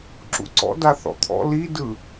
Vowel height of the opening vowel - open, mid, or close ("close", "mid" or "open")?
close